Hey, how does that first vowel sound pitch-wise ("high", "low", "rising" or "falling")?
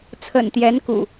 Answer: low